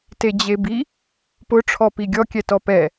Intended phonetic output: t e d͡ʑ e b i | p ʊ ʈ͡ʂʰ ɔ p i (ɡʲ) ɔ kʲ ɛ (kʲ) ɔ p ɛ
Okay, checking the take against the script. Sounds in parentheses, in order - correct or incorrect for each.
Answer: correct, incorrect: t

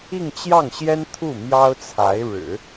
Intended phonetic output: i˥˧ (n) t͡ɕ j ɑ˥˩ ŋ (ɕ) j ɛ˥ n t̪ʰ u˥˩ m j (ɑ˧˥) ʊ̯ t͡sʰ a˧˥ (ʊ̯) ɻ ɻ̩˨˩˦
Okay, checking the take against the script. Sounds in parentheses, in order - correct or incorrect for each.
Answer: incorrect: ŋ, correct, incorrect: ɑ˥, incorrect: ɪ̯

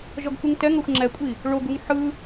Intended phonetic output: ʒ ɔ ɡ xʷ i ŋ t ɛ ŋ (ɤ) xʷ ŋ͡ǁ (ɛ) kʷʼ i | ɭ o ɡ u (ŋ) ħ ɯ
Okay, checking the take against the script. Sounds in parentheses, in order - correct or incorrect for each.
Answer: correct, correct, correct

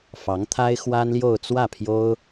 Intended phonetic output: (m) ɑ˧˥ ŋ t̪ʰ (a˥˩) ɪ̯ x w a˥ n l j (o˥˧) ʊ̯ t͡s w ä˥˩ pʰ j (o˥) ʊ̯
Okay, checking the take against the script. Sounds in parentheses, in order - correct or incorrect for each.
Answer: incorrect: f, incorrect: a˥, correct, correct

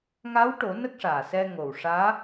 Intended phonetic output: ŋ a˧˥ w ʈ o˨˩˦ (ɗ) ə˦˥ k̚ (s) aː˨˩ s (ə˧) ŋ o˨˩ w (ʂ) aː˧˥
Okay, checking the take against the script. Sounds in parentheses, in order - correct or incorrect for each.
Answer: incorrect: n, incorrect: ʂ, incorrect: ɛ˧, correct

